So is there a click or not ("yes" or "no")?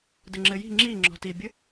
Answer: yes